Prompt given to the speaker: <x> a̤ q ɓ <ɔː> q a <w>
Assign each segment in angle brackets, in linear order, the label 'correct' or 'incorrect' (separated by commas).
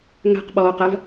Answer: incorrect, correct, incorrect